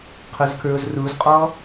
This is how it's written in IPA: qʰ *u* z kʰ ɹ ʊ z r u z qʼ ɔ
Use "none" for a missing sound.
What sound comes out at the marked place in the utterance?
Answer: ʊ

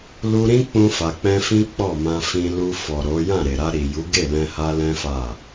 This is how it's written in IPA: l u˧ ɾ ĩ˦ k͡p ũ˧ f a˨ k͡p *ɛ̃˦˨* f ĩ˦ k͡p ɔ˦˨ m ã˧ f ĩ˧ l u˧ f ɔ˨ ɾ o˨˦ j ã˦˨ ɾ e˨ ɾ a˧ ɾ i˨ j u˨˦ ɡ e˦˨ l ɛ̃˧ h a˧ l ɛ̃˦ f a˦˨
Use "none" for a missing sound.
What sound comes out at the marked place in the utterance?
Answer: ɛ̃˧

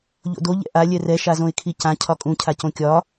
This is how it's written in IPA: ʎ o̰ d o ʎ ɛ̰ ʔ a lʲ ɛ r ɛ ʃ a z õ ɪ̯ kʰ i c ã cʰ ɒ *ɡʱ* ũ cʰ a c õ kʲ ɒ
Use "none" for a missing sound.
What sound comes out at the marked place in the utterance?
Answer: kʼ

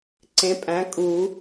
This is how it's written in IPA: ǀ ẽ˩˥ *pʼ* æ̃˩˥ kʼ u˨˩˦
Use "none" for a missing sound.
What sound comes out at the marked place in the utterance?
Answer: pʼ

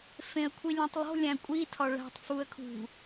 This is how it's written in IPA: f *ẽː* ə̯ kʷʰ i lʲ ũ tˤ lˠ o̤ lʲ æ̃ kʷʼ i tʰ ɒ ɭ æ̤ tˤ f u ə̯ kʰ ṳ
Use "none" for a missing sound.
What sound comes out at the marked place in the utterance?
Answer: ẽ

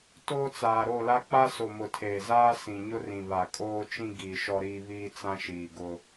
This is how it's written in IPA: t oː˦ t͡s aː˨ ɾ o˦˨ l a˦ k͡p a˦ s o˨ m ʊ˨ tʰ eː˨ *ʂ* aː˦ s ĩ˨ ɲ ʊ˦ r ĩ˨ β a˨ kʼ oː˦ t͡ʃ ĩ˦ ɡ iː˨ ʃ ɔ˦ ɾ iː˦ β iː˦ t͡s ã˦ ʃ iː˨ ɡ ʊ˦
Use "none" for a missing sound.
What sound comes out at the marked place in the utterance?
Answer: z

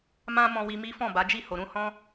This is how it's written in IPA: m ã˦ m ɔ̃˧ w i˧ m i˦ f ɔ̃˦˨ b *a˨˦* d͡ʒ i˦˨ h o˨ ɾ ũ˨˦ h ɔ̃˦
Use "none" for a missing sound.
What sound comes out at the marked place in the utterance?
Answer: a˨˦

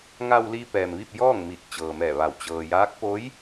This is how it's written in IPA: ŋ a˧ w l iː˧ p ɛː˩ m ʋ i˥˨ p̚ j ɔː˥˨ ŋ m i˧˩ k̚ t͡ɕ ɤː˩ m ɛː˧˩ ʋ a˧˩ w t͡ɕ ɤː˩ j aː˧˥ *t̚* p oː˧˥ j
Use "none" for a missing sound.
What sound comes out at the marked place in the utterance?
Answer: k̚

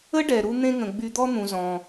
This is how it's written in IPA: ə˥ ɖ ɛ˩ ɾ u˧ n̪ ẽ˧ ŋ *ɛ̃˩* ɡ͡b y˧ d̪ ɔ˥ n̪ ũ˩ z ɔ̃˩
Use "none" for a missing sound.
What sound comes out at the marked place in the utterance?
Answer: ə̃˩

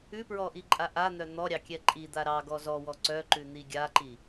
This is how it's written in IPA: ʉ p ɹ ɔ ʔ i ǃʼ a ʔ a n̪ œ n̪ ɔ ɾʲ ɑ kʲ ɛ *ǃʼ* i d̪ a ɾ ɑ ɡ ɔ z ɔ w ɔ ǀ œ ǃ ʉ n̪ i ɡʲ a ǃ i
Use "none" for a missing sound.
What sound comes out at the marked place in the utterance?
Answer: ǃʼ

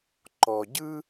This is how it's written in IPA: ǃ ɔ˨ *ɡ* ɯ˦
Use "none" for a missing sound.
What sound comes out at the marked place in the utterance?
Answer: ɟ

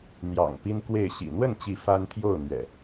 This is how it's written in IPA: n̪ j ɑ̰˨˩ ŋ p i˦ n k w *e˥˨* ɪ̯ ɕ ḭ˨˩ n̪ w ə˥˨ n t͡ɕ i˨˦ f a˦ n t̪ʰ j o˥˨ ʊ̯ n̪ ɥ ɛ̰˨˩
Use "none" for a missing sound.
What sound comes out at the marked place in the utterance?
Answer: e˥˨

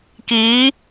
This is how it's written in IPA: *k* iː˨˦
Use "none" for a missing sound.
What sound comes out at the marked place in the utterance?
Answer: k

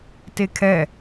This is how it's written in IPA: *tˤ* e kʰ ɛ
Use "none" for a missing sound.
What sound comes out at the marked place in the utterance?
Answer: t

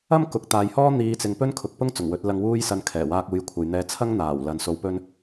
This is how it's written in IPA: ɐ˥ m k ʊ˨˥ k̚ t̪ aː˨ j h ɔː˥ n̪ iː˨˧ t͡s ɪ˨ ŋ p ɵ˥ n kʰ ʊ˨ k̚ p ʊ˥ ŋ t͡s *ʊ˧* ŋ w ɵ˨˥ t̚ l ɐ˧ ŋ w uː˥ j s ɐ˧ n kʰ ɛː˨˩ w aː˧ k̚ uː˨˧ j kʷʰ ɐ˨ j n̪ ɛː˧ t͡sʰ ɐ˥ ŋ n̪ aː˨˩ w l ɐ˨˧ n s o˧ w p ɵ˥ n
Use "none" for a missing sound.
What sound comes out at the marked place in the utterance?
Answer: ʊ˨˩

